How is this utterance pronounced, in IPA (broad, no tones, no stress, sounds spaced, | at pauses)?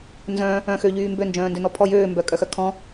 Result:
n z œ̃ | œ̃ x ø ʎ yː m b ø n d͡ʒ œ̃ː n d ø n ɔ pʰ ɔ j øː m b œ kʼ œ x œ kʰ ɔ̃